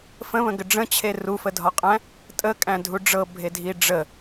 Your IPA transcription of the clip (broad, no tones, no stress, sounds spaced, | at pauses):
f ə̃ β ə̃ ɡ ə ɖ͡ʐ ə̃ t͡ɕʰ e r u f ə dʱ ɒ qʼ æ̃ | tʼ ə kʼ æ̃ dʱ u ɖ͡ʐ ɤ bʱ e dʱ i ɖ͡ʐ ə